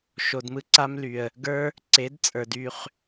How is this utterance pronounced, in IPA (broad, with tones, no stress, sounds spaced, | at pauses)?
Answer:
ʃ o˨ d m ɯ˦ ǀ a˦ m l y˨ ə̯ | ɡ ə˞˦ | ǀ e˨˦ d t͡sʼ ə˞˨ d y˦˨ χ